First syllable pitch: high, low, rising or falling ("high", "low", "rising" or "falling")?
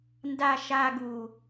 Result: low